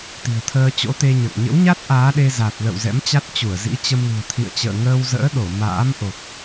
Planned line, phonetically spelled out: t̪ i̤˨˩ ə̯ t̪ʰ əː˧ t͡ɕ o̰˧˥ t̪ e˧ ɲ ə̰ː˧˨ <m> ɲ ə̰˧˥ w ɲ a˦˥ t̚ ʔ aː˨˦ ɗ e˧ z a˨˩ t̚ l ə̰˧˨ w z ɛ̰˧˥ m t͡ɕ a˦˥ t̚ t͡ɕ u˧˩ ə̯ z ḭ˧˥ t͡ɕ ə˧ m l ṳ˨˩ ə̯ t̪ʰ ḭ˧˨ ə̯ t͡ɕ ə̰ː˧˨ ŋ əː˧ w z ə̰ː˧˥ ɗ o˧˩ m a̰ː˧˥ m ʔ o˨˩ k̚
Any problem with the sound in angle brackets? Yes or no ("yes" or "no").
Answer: yes